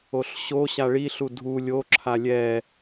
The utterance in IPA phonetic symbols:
o ɬ ɕ o ɕ a ɭ i ɬ u dʱ u lʲ o ǁʰ a lʲ ɛ

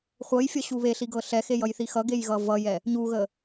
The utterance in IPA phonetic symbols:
χʷ ɤ j fʲ ʌ ɕ u β e ɬ i ɡ ɤ ɬ ɛ x e j ʌ j θ i x ʌ ɡ e j ɣ ʌ v ʌ j ɛ | ɲ u ɣ ə

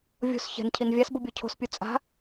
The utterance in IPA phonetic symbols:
vʲ o̤ s ç ɛ̤ n cʰ i n vʲ a s b ʊ bʲ o cʰ o̤ s pʲ u t͡sʼ a̤

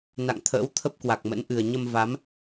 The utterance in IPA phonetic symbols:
n a̰˧˨ ŋ t̪ʰ ə̰ː˧˥ w t̪ʰ ə˦˥ p̚ k w a˨˩ k̚ m ə̰˧˥ n ʔ ɨ˨˩ ə̯ ɲ ə˧ m v a˨˦ m

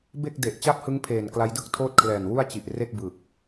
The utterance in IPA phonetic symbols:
b e˥˩ k̚ d e˨˩ ʔ t͡ɕ a˥˩ p̚ h ɯ˦˥ ŋ pʰ eː˨˩ n k l a˦˥ j d ɯ˥˩ k̚ tʰ oː˥˩ t̚ kʰ l ɛː˨˩ n w u˥˩ a̯ t͡ɕ i˨˩ ʔ r e˥˩ k̚ b ɯ˨˩ k̚

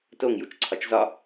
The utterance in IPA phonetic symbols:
t o ŋ j u t͡ʃ ǀʰ ɒ t͡ʃ z ɒ

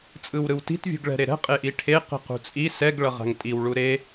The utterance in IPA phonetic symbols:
t͡sʼ ɯ w ɾ ɯ w t i̤ t vʲ ṳ ɡ ɭ ɛ̤ ɾ e ɾ ɛ̤ qʼ e ʔ i ʈʰ e q i̤ q ṳ t͡sʼ i s ɛ ɡ ɭ ʌ ʁ a̤ ŋ tʼ i w ɭ u ɾ e

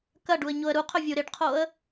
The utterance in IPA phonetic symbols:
k ɐ ɖ u ə̯ ɲ o ə̯ ɾ u qʰ ɵ vʲ u ɾ ɪ ɖ qʰ o ə̯

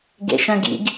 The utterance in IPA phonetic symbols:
ɡ ḛ ʃ œ̃ ɡ ḭ ɡ

